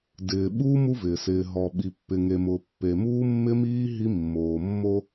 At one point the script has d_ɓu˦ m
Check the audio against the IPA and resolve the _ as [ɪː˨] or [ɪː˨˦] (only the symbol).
ɪː˨